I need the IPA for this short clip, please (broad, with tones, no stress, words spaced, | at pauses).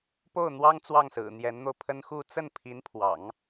po˥˩ʊ̯n̪wɑ˥ŋ t͡swɑ˥˩ŋsɹ̩˨˩ n̪jɛ˧˥nn̪o˧ʊ̯pʰə˥n xu˥˧ t͡sə˥˩npʰi˧˥npʰwɑ̰˨˩˦ŋ